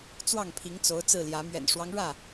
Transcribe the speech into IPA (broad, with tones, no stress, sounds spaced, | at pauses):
t͡s w ɑ˥˨ ŋ pʰ i˨˦ ŋ t͡s o˨˦ ʊ̯ t͡s ɹ̩˥˨ l j ä˨˦ m ɥ ɛ̰˨˩ n ʂ w ɑ˦ ŋ ɻ ä˥˨